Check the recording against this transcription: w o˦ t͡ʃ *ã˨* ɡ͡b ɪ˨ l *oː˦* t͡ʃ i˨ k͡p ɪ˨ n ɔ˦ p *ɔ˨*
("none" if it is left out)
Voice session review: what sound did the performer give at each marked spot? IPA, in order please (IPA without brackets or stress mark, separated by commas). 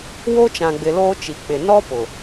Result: ã˨, oː˦, ʊ˨